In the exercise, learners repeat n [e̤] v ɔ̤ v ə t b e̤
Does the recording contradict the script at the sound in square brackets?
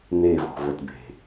yes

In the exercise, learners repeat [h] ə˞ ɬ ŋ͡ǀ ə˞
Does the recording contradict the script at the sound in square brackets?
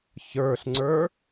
yes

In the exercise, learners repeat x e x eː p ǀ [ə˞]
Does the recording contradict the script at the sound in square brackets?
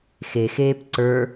no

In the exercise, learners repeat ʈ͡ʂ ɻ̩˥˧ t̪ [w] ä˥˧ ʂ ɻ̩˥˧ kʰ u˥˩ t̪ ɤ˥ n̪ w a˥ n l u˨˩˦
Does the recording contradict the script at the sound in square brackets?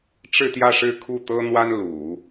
yes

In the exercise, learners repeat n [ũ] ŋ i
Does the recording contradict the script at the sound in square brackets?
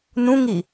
no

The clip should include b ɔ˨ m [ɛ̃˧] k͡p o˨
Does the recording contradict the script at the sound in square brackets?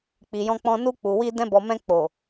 no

